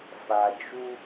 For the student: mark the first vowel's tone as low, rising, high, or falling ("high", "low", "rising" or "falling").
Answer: low